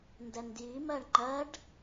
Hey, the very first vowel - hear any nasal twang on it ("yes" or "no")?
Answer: no